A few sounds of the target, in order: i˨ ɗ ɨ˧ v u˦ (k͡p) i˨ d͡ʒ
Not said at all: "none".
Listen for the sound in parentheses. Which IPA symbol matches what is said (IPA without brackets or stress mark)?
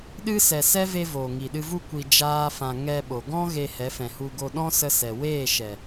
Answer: kʷ